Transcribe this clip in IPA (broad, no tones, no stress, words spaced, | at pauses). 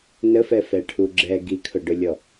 nəfɛ fɛʈʰuɡ͡ǁɛ ɡikʰʊɖʊlʲɔ